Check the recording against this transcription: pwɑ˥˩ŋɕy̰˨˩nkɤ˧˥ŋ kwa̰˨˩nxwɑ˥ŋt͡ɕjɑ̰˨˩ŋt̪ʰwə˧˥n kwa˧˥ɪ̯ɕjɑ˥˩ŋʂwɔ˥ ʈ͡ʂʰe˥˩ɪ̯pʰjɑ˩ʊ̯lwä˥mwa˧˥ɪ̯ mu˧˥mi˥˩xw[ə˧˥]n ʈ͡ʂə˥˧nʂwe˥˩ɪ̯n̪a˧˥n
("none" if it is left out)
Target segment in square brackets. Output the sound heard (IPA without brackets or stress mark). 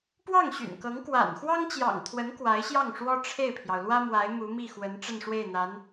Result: ə˧˥